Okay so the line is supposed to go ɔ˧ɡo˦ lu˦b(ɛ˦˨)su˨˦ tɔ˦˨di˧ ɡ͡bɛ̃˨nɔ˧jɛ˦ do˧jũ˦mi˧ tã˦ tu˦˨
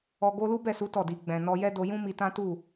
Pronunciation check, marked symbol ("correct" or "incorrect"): correct